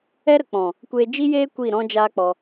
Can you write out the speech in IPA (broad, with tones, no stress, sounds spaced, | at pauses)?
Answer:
ɛ˦ ɾ ə˨ k͡p ɔ̃˨ | kʷ eː˧ d͡ʒ i˦ j eː˦ kʷ i˦˨ ɾ ɔ̃˦ d͡ʒ aː˦ k͡p ɔ˧